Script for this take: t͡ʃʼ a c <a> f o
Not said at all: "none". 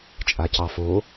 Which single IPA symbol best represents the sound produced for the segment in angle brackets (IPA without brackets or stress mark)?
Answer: ɑ